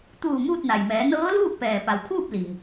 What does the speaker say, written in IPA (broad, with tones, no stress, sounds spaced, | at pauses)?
t̪ uː˧˩ m uː˥˨ t̚ n a˩ j m ɛː˩˧ n ɤː˧˥ l uː˥˨ k̚ p ɛː˩ p a˩ w kʰ uː˥˨ p̚ l i˩ ŋ